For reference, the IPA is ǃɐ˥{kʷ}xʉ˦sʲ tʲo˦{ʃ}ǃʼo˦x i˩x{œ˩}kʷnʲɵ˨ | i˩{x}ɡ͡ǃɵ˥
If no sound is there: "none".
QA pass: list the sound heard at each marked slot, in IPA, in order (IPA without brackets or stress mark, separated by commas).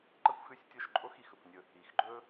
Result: kʷ, ʃ, ɵ˩, x